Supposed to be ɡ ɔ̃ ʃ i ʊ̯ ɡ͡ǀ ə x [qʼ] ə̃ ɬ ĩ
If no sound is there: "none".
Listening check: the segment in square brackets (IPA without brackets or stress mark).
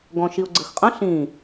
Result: qʼ